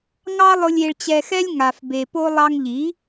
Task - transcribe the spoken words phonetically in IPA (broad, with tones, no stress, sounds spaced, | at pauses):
ŋ ɑ˦ lˠ ʊ˧ lʲ e˧ ɭ t͡ɕ ɛ˧ x ɛ˦ lʲ ŋ a˨ f b e˨ p o˦ lˠ ɑ˧ ŋ ʎ i˨˦